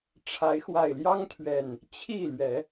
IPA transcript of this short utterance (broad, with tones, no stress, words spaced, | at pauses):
ʈ͡ʂʰa˨˦ɪ̯xwa˨˩ɪ̯ljɑ˦ŋt̪ʰɥɛ˨˩n | t͡ɕʰi˥˨lɥɛ˨˦